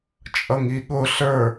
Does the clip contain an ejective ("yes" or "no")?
yes